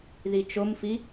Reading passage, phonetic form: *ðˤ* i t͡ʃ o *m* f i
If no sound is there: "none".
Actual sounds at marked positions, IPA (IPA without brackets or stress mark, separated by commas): ð, m